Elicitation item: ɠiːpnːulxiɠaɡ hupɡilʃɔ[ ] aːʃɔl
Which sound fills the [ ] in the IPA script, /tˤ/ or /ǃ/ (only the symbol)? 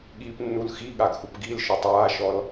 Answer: tˤ